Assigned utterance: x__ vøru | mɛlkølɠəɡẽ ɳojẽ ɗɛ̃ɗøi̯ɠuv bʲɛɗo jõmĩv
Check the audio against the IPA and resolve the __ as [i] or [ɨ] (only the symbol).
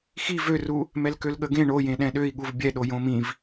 i